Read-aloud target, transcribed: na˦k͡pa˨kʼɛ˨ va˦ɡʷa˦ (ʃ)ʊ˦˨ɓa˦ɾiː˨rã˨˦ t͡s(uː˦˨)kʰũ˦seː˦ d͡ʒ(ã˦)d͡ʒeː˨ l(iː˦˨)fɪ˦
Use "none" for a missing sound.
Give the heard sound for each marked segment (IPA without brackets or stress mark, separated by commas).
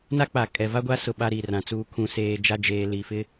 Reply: s, uː˦, a˦, iː˨